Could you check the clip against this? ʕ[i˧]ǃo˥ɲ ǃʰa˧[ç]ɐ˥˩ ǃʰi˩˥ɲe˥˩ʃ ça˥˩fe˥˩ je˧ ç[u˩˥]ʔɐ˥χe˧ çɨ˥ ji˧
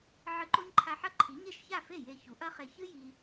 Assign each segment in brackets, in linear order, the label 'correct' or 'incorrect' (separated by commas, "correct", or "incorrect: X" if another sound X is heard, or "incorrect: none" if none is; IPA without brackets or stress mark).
incorrect: ɨ˧, incorrect: ħ, correct